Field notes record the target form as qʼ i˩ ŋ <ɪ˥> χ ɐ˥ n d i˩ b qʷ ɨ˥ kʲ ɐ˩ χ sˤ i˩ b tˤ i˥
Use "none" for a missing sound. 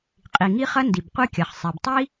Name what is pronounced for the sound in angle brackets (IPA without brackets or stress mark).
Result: i˥